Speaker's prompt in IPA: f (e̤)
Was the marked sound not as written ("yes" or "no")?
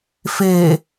yes